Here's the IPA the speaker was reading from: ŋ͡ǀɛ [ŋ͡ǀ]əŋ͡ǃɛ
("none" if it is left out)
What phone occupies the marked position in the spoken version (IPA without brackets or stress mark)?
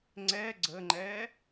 ɡ͡ǀ